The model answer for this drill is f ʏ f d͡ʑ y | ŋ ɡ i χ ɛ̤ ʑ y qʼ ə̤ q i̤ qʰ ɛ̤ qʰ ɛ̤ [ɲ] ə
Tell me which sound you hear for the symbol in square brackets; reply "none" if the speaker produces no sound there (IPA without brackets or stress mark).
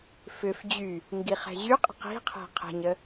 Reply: ɲ